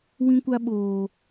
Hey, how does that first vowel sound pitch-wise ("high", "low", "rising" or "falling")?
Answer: high